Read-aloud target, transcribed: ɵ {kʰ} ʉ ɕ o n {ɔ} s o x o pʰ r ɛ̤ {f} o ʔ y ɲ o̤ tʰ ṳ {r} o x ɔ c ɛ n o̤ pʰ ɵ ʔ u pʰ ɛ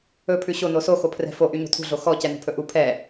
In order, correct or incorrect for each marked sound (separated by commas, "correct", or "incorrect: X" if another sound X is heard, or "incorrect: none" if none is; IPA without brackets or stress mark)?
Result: incorrect: pʰ, incorrect: o, correct, incorrect: ɮ